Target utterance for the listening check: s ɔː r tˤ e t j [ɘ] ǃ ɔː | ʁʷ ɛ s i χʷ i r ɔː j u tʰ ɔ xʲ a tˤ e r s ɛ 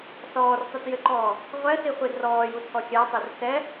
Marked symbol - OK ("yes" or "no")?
yes